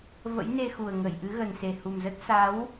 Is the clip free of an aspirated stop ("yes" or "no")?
yes